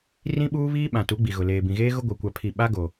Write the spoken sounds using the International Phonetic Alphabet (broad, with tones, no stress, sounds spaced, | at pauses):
r ĩ˦ ɓ uː˦ β iː˦ ɓ ã˨ t u˨˦ ɡ͡b i˨ ɣ ʊ˨ l eː˨ b ĩ˨ ɣ eː˦ ɣ ʊ˦ ɡʷ a˦ kʷ a˦ pʰ i˦˨ ɓ a˦ ɡ o˨